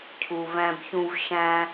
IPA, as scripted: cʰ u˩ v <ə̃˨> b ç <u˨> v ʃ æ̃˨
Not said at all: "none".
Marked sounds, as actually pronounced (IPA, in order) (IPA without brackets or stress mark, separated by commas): æ̃˨, ũ˨